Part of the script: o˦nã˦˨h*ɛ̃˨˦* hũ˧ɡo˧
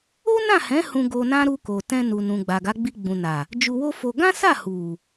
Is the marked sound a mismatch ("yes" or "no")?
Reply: no